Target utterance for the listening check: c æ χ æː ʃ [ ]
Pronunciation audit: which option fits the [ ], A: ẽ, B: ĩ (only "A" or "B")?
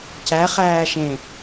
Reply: A